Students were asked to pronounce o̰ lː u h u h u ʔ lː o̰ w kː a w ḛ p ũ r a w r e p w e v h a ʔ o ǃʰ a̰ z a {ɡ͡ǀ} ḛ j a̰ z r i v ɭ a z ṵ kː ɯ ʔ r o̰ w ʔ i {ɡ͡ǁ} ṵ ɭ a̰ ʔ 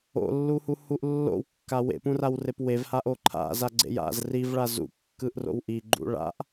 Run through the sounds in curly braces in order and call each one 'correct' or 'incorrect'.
correct, incorrect: ɡ͡ǃ

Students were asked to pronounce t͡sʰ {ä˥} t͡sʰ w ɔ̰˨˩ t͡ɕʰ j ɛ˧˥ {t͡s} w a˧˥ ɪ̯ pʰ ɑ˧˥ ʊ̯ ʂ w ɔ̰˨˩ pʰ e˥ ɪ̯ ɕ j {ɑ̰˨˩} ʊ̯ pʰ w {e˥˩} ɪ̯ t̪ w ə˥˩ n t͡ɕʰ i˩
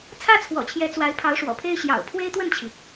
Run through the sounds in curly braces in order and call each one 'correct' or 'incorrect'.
correct, correct, correct, incorrect: e˥

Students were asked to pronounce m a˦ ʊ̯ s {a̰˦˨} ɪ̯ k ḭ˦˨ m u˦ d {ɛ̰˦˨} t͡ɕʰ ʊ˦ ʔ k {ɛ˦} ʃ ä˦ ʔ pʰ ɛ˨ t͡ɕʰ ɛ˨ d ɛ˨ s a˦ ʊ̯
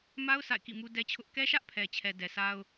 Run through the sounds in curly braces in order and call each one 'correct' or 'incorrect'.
correct, incorrect: ɛ˦, correct

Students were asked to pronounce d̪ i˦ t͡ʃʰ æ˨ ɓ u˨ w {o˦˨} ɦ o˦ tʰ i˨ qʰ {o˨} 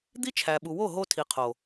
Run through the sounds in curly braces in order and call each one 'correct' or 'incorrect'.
correct, correct

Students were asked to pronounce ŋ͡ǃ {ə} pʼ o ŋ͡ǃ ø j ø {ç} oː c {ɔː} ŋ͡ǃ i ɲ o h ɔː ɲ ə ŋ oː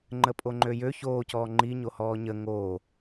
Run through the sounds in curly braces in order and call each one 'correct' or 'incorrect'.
correct, correct, correct

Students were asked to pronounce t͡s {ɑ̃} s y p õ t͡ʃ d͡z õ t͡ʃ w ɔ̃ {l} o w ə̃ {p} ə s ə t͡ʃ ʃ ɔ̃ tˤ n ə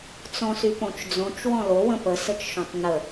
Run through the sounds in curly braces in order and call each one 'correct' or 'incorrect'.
incorrect: ɔ̃, correct, correct

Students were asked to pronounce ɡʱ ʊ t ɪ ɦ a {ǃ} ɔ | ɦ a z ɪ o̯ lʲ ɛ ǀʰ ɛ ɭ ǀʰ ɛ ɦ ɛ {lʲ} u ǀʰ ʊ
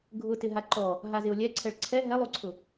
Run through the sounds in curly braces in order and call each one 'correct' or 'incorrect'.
correct, incorrect: lˠ

